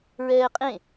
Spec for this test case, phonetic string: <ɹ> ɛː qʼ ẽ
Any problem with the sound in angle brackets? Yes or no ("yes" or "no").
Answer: no